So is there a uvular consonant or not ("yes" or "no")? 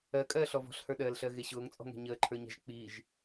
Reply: no